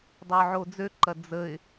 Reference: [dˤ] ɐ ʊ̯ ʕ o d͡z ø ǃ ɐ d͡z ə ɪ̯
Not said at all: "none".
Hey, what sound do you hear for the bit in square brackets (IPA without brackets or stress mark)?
dˤ